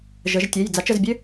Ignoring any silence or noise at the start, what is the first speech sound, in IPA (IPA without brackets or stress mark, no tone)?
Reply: ʒ